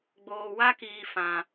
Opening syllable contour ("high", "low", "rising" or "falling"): low